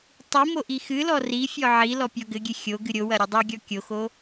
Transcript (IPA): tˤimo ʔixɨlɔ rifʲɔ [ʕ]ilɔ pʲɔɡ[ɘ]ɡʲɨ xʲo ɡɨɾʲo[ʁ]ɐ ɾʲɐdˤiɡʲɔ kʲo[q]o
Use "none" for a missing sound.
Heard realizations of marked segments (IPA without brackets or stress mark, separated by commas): ʕ, ɘ, w, x